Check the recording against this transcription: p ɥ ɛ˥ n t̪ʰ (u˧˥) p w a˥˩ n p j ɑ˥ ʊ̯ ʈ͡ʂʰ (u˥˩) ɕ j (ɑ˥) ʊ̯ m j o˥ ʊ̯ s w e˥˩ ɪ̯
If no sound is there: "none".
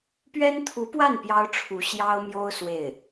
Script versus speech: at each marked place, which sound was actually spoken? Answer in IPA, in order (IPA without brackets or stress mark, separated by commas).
u˧˥, u˧˥, ɑ˥